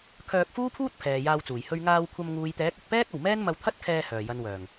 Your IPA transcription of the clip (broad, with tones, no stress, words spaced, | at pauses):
kʰœː˧k̚fuː˥pʰuː˥t̚ pʰɛː˨jaː˧wt͡suː˨˩j hɵ˧ɥŋaː˧wkʷʰɐ˧m ŋuː˨jt̪ɛː˨˥k̚ɵ˨t̚pɛː˥k̚ ɐ˨˩wmɛː˥nmɐ˧w t̪ʰɐ˥t̚kʰɛː˧ hœː˨˩jɐ˨nwœː˨˩ŋ